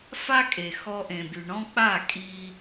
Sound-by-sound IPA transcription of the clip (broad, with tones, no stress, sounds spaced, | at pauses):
f a˦ kʼ e˨ x ɔ˧ ʔ ẽ˨ b y˨ ɳ ɔ̃˦ k͡p a˦˨ kʼ i˧